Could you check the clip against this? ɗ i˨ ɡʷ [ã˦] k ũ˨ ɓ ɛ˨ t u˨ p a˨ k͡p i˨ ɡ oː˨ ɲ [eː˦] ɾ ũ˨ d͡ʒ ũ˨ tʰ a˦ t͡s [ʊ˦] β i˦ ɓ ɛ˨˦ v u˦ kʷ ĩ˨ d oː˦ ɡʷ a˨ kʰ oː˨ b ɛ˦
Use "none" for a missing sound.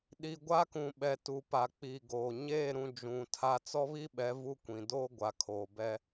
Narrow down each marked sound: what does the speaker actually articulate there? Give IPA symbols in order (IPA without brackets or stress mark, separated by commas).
a˦, eː˦˨, ɔ˦